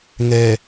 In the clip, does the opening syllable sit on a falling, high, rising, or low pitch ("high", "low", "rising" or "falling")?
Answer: low